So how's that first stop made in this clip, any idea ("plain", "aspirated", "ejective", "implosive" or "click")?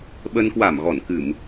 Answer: implosive